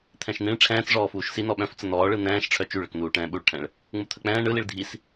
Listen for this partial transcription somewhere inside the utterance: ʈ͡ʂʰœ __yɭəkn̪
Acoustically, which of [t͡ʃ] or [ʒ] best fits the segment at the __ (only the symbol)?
t͡ʃ